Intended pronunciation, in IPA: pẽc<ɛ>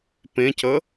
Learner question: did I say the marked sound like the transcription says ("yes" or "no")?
no